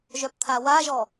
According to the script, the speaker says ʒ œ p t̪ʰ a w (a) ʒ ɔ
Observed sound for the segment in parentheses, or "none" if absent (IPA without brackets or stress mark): a